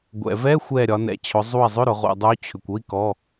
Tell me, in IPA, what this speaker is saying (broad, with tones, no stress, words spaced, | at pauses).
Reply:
ɡʷɛ̰˩vɛ˧˥˧ xʷɛ˧˩ ɾʲɒ˩˧ nɛ̰˩t͡ɕʰʊ˩˧ zˤu˧˩i̯zˤʏ˧˥˧ɾʊ˩˧ ʁṵ˩dˤu˨˥t͡ɕʰʏ˩kʷ ʊ˥˧i̯ kɔ˧˥˧